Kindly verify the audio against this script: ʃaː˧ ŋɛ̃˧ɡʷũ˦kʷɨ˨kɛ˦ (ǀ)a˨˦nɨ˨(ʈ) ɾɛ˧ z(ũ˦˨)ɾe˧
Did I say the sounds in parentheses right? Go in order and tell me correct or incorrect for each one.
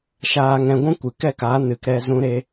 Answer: incorrect: k, incorrect: k, incorrect: ũ˧

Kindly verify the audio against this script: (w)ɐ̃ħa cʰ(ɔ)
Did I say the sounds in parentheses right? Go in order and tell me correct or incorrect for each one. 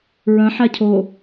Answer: incorrect: ɹ, incorrect: o

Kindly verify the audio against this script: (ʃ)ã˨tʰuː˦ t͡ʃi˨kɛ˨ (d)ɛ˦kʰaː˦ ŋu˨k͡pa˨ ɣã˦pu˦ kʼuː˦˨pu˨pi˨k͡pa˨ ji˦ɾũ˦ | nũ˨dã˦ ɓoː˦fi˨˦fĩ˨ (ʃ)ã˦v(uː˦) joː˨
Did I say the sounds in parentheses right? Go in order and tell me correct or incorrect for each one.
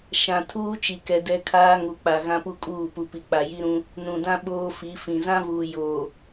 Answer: correct, correct, incorrect: z, incorrect: uː˨

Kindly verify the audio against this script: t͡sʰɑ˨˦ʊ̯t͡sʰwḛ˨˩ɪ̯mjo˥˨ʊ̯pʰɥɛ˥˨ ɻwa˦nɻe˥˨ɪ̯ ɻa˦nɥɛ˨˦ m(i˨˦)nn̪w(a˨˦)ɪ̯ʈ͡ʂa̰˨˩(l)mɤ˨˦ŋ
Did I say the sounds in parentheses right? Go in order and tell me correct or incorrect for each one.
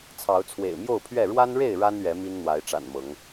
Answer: incorrect: i˦, correct, incorrect: n

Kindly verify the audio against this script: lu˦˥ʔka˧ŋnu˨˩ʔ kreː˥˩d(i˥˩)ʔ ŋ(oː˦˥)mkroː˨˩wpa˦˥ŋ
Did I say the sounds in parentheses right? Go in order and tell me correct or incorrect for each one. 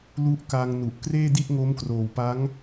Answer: correct, incorrect: o˦˥

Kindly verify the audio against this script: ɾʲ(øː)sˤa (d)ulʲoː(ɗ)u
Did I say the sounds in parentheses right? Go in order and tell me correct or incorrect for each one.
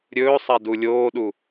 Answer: incorrect: ɵː, correct, correct

